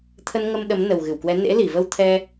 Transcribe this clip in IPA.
t̪ʰə˧nŋə˧m ɗə˨˦m nə˨˩wɣɨ˧˩wkwɛ˨˦ nḛ˧˥li˧˩və˧wt̪ʰɛ˧

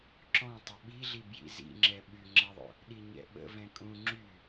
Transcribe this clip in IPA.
ǁɔ̃ tˤəɓiɮi bjḭzḭŋ͡ǁɛ ɓyŋ͡ǁɛðˤo̰ | ɗiɲɛ̰ɓə̰ vɛ̃kʼũ ŋ͡ǁy

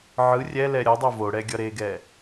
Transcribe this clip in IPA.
ʕɯ rʲɛlɛ ɾʲʌdˤo voɽɛ ɡʲʌɾeɡɛ

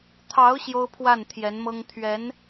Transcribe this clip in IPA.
t̪ʰɑ˧˥ʊ̯ ɕjo˥ʊ̯pʰwa˥˩n t̪ʰjɛ˧˥nmɤ˥ŋ t̪ʰɥɛ˧˥n

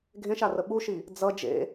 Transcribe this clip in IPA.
ɡʱẽʃarə ɓuʃi | d͡zʌ d͡ʒḛ

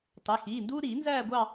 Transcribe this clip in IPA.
tˤɛ˩˧˩xiː˩˧˩nduː˥ ɾiː˨˩˦nzæː˥˧ɡʷɑ˥˧

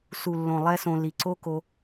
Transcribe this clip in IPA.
su˨lːõ˨ lˠɛ˦sõ˧ li˨ǀo˦ko˧

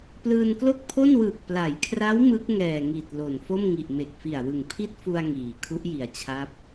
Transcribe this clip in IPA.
plɯː˧nklo˥˩k̚pʰo˥˩nwɯː˨˩k̚ pla˩˦jkʰra˦˥w mɯ˦˥k̚ ŋɛː˨˩ŋi˨˩t̚ lo˨˩n fo˥˩mŋi˨˩ʔ me˨˩k̚fi˨˩a̯wɯ˨˩ŋ pʰi˥˩t̚fu˧a̯ ŋiː˩˦ kʰu˦˥ʔji˨˩a̯t͡ɕʰa˦˥p̚

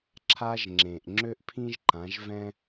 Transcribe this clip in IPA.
ǁʰa˧ʒŋ͡ǁẽ˩ʔ ŋ͡ǁø˥ʔpʰĩ˥ʒ ǃã˩˥ʒvɛ̃˥

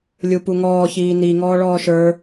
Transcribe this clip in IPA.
lʲupuŋɔː çiːni ŋɔːɭɔːʃə˞

